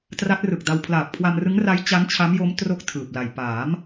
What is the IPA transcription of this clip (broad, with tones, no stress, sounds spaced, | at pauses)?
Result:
t r a˦˥ t̚ r ɯ˨˩ k̚ d a˧ w pʰ l aː˨˩ p̚ kʰ w a˧ m r ɯ˦˥ ŋ r a˦˥ j t͡ɕ a˦˥ n t͡ɕʰ a˦˥ m j o˦˥ m t r o˥˩ k̚ tʰ ɯː˨˩ p̚ l a˨˩ j p aː˩˦ m